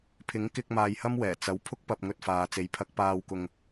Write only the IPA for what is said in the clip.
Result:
pʰ ɪ˨˥ ŋ k ɪ˧ k̚ m aː˧ j h ɐ˥ m w ɛː˨˩ t͡s ɐ˨˥ w pʰ ʊ˥ k̚ p ɐ˧ p̚ ŋ ɵ˧ t̚ f aː˨ t͡s e˨˥ j pʰ ɐ˨˥ k̚ p aː˧ w k ʊ˧ ŋ

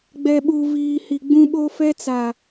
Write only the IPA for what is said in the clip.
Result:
ɡ͡b ɛ˨ ɓ u˨ v iː˨ h i˨ ɡ͡b ũ˦ ɓ o˦ f ɛ˦ t͡s a˨

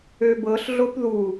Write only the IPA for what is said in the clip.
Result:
ø b ɤ ɬ ɮ o p ð u

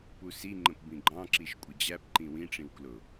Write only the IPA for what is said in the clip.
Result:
p u s i ŋ͡ǃ ə̃ p b ĩ ɡ͡ǃ ɑ̃ ǁ i ʃ kʷʼ ɪ d͡ʑ æ p ǃ ĩ w ĩ ʈ͡ʂ ĩ w k l ʊ

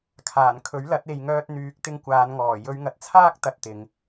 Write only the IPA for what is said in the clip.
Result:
kʰ aː˨˩ n kʰ ɵ˨˥ ɥ l ɐ˨˥ t̚ e˨ j ŋ œː˧ t̚ n̪ yː˨˥ k̚ t̪ ɪ˧ ŋ kʷ aː˨˧ n ŋ ɔː˨˩ j ɵ˨˧ ɥ ŋ ɐ˨ t̚ t͡sʰ aː˥ k̚ t̪ ɐ˧ t̚ t̪ ɪ˨˧ ŋ

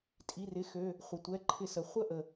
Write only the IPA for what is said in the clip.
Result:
tʼ i˩˧˩ r ɪ˩˧˩ x ø˩˧˩ | χʷ ɪ˩ tʷ ɛ˩˧˩ ǃʰ ɪ˧˩˧ s ə˩ χʷ ə˥ ʔ ə˩

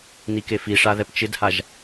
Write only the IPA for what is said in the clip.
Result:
n i k e f i ʂ a ð ɛ p t͡ʃ ɪ d h a ʒ

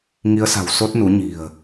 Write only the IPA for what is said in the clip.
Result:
ŋ i˨˦ ə̯ s a̤˨˩ w s o˦˥ t̚ n u˨˦ ɲ i̤˨˩ ə̯

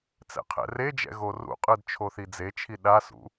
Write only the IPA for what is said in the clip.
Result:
t͡s ɛ̰ qʰ ɛ̰ r e d͡ʒ ɛ̰ ɣ o r ṵ qʼ ɯ d t͡ʃʰ o θ i d͡z e t͡ʃʰ i ɗ a s ṵ

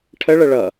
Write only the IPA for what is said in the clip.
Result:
ʈʰ ə ɭ ə ɭ ʌ

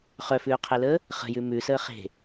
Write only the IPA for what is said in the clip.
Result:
χ œ f ʉː qʰ e l əː | χ ə̤ j ʉ m ʉ s əː χ e̤

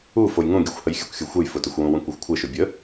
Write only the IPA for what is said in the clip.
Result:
u f o j ŋ ũ ɡʲ u xʷ h ə j xʲ ə kʷ xʲ u xʷ ə j f ʊ t ʊ xʷ w ũ w ũ kʷ ɜ xʷ kʷʰ ɘ ʃ ʊ bʲ ə

